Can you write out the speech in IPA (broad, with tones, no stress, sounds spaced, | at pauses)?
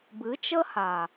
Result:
b ɨ˨˦ t͡ʃ ə˦ h a˨